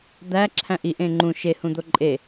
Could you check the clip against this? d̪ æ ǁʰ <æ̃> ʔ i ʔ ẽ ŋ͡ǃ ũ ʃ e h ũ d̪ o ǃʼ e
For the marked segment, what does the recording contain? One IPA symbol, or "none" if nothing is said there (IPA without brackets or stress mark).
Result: æ̃